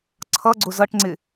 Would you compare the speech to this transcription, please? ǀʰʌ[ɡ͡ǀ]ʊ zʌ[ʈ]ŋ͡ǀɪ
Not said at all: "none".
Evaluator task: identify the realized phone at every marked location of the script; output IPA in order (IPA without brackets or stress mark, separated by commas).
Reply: ɡ͡ǀ, ʈ